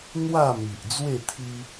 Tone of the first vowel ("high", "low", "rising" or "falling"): falling